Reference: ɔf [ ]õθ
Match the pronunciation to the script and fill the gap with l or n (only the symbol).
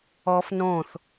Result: n